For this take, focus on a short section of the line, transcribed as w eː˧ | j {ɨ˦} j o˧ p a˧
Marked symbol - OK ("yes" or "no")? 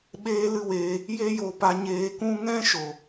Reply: no